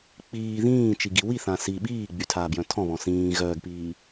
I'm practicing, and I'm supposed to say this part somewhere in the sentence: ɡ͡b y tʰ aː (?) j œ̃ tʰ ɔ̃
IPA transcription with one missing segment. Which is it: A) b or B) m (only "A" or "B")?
A